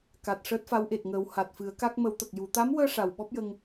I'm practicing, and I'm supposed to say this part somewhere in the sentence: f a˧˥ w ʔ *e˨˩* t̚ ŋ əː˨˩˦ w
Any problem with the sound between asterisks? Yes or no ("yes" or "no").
no